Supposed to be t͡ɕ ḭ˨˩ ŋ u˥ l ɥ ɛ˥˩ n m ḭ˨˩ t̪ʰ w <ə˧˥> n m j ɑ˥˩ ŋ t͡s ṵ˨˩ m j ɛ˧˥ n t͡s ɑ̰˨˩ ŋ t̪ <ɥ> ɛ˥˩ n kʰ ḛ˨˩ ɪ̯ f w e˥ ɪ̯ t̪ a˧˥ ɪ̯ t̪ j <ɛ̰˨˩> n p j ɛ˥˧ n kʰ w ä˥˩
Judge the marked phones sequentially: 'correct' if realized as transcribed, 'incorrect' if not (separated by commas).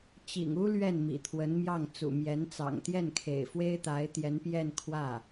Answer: correct, incorrect, incorrect